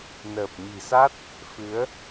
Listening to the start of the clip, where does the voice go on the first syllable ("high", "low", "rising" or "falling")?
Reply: low